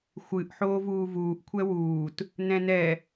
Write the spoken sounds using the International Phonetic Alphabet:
xʷ ɨ ʔ ħ oː v uː v uː ʔ kʷʰ ɛ w uː t | n ɛ̃ n ɛ

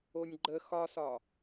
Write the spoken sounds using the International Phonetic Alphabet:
o nʲ ɡ͡ǃ ə x ɒ s ɒ

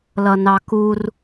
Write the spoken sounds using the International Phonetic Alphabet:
l ʌ n ɑ k u r

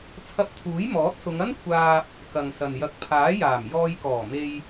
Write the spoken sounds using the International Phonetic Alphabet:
t͡sʰ ɐ˧ p̚ t̪ʰ uː˨˥ j m ɔː˨˥ t̚ s ʊ˨˧ ŋ ɐ˥ n kʷʰ aː˧ p̚ | k ɐ˨ ŋ s ɐ˨ n j ɐ˧ k̚ pʰ aː˨˥ j aː˨˩ m j ɔː˧ j k ɔː˨˩ m e˧ j

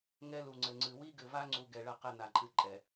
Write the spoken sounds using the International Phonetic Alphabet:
ŋ ɛ˦ l u˨ ŋ͡ǀ ɘ˨ ŋ͡ǀ ɨ˨ w i˦ ɡ ɘ˨ v a˦ ŋ͡ǀ u˨ ɡ ɛ˨ ɭ ɐ˦˨ q ɛ˦ n a˨ ǃʼ ɨ˦ ǃʼ ɛ˨

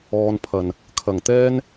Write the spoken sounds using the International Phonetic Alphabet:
ɔː˧ n pʰ ɐ˨˩ n | kʰ ɐ˨˩ ŋ t̪ ɛː˥ n

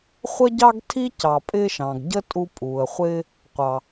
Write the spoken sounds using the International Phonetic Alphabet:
χʷ ə˥ ɟ ɑ˥ ɡ tʰ i˥ c ɑ˨ pʼ ɪː˦ ʃ ɑ̃˩ ɡ ɟ ə˥ tʼ u˦ pʼ uː˩ ə̯ χʷ ɪː˥ | qʷ ɑ˨

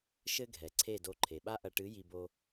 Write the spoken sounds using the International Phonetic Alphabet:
ʃ ɘ˦ ɡʱ ɛ˨ ǀʰ e˦˨ d o˧ ǃʰ e˨ ɓ a˦ ʔ ɐ˧ ʈ ɨ˨˦ j i˧ b o˧

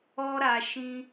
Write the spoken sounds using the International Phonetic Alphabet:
ɔ˧ ɾ a˨ ʃ ĩ˧

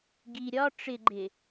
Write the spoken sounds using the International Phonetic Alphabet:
ɡ i ɾʲ ɒ ʈ͡ʂ ɪ ɡ͡ǃ ɪ

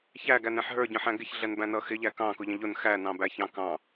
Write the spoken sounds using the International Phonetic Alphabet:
ç æ ɡ æ n ɛ̃ ħ ɦ ə˞ ɟ ə̃ ħ æ̃ ɡ ɪ ç ɮ ɛ n b æ̃ n ʌ x ɪ ʎ æ k ɑ̃ k ʊ ʎ ə̃ ʎ ʊ n x æ n ɑ̃ b æ ç ɑ̃ k ɑ̃

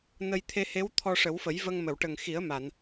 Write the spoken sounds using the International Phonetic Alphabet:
n ə˧ j t̪ʰ e˧ h e˧˥ w t̪ʰ ɔ˧ ʂ ə˨˩˦ w f ə˨˩˦ j v ə˧ ŋ m ə˨˩˨ w ʈ ə˨˩ ŋ x i˨˩˦ ə̯ m a˨˩˨ n

